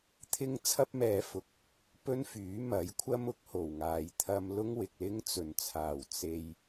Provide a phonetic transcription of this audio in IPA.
t̪ʰ ɪ˥ ŋ t͡sʰ ɐ˥ p̚ m ɛː˨ f ʊ˨ k̚ | p ɵ˥ n f yː˨˥ m ɐ˨˥ j kʷʰ ɐ˥ m ʊ˨˥ k̚ h o˨˩ w ŋ aː˨ j t̪ʰ ɐ˧ m l ʊ˥ ŋ w ɪ˨ k̚ l ɪ˥ ŋ t͡s ɵ˨˩ n t͡sʰ aː˨˩ w t͡s e˧ j

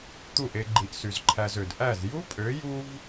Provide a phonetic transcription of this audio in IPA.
t̪ u˦˨ ʔ e˧ ɡ͡ǃ i˨ ʔ s y˨ z ǃʰ æ˧ z ø˨ d ʔ æ˦˨ z j u˦ pʼ ø˨˦ j u˦ v

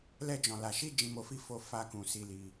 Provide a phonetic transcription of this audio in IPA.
l ɛ˧ d͡ʒ ɔ̃˨ l a˨ ʃ i˧ d͡ʒ ĩ˧ m o˧ f i˦ f o˧ f a˦ k ũ˧ s i˧ l i˧

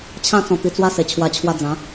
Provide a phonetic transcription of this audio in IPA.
t͡ɕʰ ã˧ t͡s ɔ̃˨˩ t̪ i˧ t͡s w a˦ s e˨˩ t͡ɕʰ w a˧ t͡ɕʰ w a˧ d͡z ã˨˦

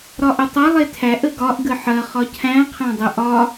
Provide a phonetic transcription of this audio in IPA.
ɾ ɒ ʔ ə tˤ ɐ lˠ e tʰ æ ʔ ə ɡ ɒ ʔ ɡ ə ħ ɐ χ ɒ cʰ æ̃ qʰ æ̃ dˤ ə ʔ ɒ

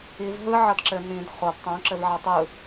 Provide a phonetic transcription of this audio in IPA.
i v ɦ ɯ ʕ ʌ d ǁ ɘ n ĩ d χ o d tˤ õ ǁ ɘ v ʕ ʌ tˤ ɯ

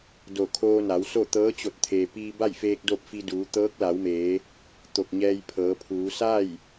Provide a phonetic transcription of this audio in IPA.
d o˧˩ kʰ oː˧ n a˩˧ w s o˥˨ t̪ ɤː˧˥ t͡ɕ o˧˩ t̚ t̪ʰ eː˩ p iː˧ b a˥˨ j f eː˧ k̚ d o˥˨ p̚ f i˧ d uː˩˧ t̪ ɤː˧˥ k̚ l a˩˧ w m eː˩˧ | t̪ o˧˩ k̚ ɲ ɛː˧ j pʰ ɤː˩˧ pʰ uː˩˧ s a˥˨ j

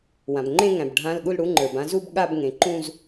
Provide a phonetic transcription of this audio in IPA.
w ã˩ b ŋ͡ǃ ẽ˥˧ ŋ æ̃˩ b ɖʱ ã˧˥˧ l ɠ u˥˧ l ɽ u˨˦ ŋ͡ǃ ə˞˩ b ã˥˧ z u˥˧ b ɠ a˥˧ b ŋ ẽ˩ ǃ ũ˥˧ z

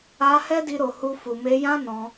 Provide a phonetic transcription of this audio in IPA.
a˧ h ɛ˦ d i˧ ɾ o˨ h u˧ f u˨ m e˧ j ã˦ n ɔ̃˧

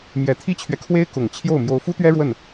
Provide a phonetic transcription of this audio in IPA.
m j ɛ˨˩ t̪ʰ i˥ t͡ɕʰ ɥ ɛ˨ kʰ w e˥ ɪ̯ k ʊ˨˩ ŋ t͡ɕʰ j o˥˩ ʊ̯ m j o˧˥ ʊ̯ f u˥ t̪ ɥ ɛ˥ ɻ w ə˥˩ n

